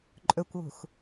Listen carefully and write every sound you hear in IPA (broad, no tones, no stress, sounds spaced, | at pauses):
ǃʼ ɵ kʷ w ṳ x